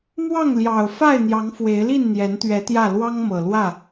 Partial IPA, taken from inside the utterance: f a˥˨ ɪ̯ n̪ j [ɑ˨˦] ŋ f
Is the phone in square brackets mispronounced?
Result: no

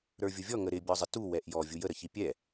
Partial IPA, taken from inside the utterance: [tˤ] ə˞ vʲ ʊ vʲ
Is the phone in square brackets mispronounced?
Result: yes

